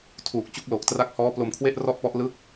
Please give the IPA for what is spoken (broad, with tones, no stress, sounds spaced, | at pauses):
tʰ uː˨˩ k̚ t͡ɕ u˦˥ k̚ l o˨˩ k̚ t r a˦˥ k̚ h ɔː˦˥ p l o˧ m kʰ w e˥˩ ʔ r ɔ˥˩ ʔ p ɔ˦˥ ʔ l ɯ˦˥ k̚